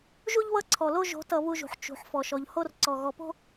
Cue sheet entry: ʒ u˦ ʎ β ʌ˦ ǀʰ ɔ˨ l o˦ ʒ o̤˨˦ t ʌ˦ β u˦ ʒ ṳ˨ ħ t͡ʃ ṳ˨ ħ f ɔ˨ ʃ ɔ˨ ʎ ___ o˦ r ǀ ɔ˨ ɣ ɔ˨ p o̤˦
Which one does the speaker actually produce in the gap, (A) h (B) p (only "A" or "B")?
A